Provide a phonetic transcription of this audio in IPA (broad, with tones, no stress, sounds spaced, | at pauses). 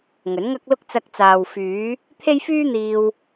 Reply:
ŋ ɵ˨˥ n ŋ ɐ˥ k̚ l ʊ˥ k̚ t͡s ɐ˧ k̚ t͡s aː˨ w f yː˨˧ | t̪ʰ e˥ j f yː˥ n̪ iː˧ w